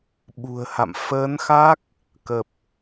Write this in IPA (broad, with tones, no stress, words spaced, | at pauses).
ɓṳ˨˩ə̯ha̰˧˨m fəː˨˦nxa˦˥k̚ | kə˨˩p̚